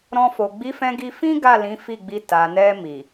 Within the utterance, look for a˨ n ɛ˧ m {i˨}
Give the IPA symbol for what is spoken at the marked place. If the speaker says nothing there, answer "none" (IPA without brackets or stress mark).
i˨